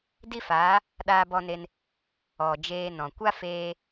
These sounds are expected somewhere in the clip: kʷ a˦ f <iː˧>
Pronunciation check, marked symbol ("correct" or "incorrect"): incorrect